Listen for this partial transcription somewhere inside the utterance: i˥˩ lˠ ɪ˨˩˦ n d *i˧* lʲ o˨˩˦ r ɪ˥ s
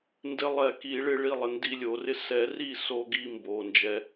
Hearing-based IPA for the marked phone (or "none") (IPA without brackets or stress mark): i˧